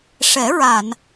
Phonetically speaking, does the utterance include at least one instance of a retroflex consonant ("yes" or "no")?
yes